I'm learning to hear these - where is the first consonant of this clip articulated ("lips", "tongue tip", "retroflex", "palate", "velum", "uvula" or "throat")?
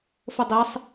lips